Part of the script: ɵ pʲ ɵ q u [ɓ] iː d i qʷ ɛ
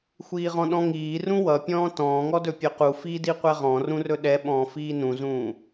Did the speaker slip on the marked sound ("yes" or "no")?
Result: yes